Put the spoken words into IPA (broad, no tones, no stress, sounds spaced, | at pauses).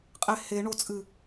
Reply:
qʼ e h e ɳ o t͡sʼ ɨ